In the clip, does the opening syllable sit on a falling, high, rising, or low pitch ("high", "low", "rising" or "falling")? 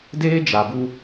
high